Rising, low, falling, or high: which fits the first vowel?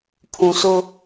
low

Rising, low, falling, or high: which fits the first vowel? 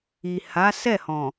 low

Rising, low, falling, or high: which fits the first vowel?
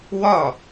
falling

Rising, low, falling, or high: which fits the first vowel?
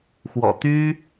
low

